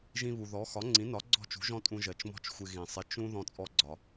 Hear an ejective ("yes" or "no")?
yes